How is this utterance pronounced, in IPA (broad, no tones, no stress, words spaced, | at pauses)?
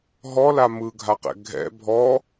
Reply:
ɦɔla mɯɡʱaqɛ̰ ɡʱɛ̰ bʱɔ